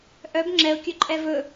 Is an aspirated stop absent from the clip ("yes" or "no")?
yes